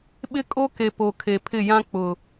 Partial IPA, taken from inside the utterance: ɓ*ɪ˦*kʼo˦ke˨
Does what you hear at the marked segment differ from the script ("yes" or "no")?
no